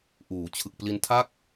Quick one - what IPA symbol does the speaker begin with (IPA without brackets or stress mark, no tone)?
ʔ